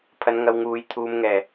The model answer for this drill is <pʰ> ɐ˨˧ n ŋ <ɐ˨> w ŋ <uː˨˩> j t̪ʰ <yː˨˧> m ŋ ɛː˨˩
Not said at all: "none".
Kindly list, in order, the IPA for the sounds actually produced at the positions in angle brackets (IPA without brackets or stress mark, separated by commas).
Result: pʰ, ɐ˨, uː˨, uː˨˧